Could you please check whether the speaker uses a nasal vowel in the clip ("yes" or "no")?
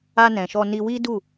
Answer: yes